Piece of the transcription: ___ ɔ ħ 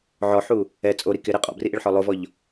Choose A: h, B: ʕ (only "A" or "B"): B